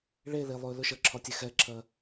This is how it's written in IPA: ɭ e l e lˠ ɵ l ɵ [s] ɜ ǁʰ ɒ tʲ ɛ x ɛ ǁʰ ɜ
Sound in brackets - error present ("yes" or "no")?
yes